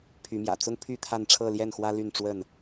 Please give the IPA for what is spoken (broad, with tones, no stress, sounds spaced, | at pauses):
pʰ y˨˦ m j ä̰˨˩ t͡s ʊ˦ ŋ pʰ y˥˨ t̪ʰ a˥˨ n ʈ͡ʂʰ ɤ˥˨ l j ɛ˥˨ n x w ä˦ l y˥˨ n ʈ͡ʂ w ə˥˨ n